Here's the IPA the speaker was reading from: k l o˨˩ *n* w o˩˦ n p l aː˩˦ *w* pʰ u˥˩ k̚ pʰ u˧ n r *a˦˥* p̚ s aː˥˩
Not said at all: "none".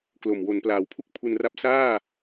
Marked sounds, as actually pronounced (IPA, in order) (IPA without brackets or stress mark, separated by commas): m, w, a˦˥